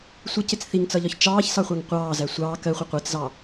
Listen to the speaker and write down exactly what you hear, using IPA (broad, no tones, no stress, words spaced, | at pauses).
sʷɪcɪt͡s θiŋt͡sʌʎɒç t͡ʃɑːçsɑχʷɜŋ qʷɑːzæ sʷɑː kɜχʷʌ qʷɪːt͡szɑ